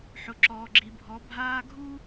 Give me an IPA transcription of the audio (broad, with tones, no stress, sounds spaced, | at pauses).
ħ ʊ˨ ǁ ɔː˨ ɡ͡ǁ i˨ bʱ ɔ˨˦ bʱ aː˦ ɡʱ u˦